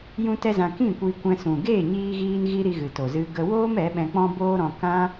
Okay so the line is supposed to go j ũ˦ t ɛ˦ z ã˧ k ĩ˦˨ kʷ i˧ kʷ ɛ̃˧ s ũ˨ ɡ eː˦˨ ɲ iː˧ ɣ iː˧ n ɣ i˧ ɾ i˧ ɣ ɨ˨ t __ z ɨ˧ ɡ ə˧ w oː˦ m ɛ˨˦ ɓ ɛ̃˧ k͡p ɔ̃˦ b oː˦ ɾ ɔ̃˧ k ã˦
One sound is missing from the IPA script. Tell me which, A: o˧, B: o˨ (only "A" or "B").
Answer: B